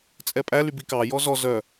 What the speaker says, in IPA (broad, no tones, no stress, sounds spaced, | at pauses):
t͡sʼ ɛ pʼ æ l y b i k ɑ j ɔ z ɔ z œ